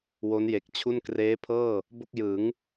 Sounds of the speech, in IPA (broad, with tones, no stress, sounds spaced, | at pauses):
w o˦˥ n j e˨˩ k̚ t͡ɕʰ u˥˩ n k r eː˦˥ pʰ ɤː˥˩ | b o˥˩ k̚ j ɯː˩˦ ŋ